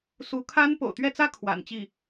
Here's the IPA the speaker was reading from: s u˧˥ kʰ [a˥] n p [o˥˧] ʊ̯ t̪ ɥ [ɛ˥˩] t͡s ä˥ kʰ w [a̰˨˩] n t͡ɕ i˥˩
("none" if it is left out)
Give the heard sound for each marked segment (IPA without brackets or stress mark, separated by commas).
a˥, o̰˨˩, ɛ˥˩, a̰˨˩